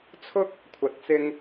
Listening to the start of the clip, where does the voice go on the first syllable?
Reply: high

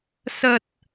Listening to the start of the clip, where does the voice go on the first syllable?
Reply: low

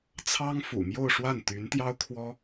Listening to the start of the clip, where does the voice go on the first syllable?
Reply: high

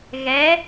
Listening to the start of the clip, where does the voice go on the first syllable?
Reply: rising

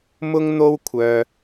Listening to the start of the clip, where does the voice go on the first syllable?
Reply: high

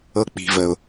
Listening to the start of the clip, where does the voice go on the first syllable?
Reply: low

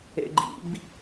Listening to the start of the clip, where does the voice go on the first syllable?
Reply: low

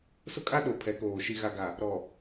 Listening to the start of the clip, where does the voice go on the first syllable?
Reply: high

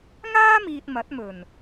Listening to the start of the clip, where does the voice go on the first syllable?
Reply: high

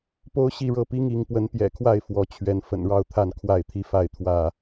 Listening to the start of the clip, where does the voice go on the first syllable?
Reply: high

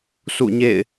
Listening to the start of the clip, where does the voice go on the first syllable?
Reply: falling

